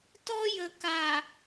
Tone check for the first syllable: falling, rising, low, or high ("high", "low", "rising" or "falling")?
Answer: high